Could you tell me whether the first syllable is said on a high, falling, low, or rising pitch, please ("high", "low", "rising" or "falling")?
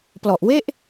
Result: low